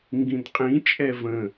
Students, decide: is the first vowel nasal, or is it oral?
nasal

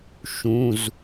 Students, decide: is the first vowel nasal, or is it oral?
nasal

